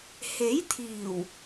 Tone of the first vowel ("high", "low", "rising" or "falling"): rising